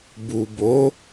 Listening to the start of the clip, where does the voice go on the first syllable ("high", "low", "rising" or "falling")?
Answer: low